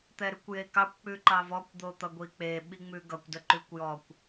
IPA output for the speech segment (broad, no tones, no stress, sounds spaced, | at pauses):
t̪ ɛ ɾ ʉ kʷ j e k ɑ kʷ k͡p ʉ ǃ ɑ v ɔ kʷ d̪ o t̪ ʌ ɡʷ i k͡p e ɓ i ŋ͡m ʉ ɡ ʌ kʷ d ə ǃ ʉ kʷ j ɔ kʷ